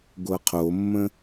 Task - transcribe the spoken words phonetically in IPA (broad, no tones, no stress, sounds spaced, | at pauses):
ɡʷ ɤ qʰ o mː ə̃